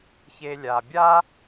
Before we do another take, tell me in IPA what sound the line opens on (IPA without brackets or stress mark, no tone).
ç